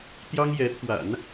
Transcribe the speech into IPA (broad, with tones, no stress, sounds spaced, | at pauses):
t̪ j ɑ˥ ŋ j ɛ˧˥ t̪ʰ w a̰˨˩˦ n